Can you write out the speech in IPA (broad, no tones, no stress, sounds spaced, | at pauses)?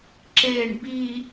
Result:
ǁ e ɳ b i